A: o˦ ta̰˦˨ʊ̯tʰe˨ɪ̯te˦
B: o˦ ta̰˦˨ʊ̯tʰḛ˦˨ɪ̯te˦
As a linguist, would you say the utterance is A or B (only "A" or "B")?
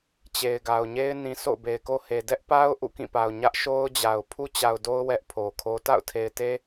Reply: A